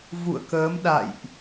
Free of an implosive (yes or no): no